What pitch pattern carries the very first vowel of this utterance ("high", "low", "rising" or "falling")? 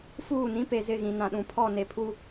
falling